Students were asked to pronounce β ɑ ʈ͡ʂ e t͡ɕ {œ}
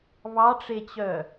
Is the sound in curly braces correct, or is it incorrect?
correct